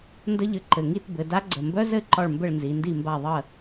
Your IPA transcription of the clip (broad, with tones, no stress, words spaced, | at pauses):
ndə˥ʎɘ˧˥ ǃɘ˩˧˩ŋi˥˨tbɘ˩˧da˧˥ ɡ͡ǀə˩˧˩mbœ˥zɘ˥˨ ǃɒ˥˨ɭmbɘ˥˨ɭnzi˩˧ ndi˥˨mba˥˨ ðˤə˥˨